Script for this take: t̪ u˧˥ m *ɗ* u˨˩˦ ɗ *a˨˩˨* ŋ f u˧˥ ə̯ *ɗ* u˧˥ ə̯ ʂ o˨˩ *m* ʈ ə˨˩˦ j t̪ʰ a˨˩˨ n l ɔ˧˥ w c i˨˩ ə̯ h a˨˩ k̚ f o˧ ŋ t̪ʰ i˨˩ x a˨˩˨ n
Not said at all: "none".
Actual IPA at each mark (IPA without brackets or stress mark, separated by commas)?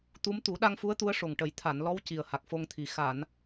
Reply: t̪, a˧, t̪, ŋ